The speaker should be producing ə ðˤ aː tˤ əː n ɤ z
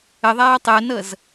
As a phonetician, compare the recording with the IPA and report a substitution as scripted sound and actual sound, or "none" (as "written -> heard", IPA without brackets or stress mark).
none